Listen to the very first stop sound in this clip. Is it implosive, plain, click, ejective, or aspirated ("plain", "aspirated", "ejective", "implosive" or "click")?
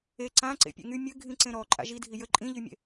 click